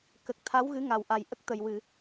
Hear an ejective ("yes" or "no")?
no